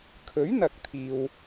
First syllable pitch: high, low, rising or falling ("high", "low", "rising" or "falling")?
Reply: rising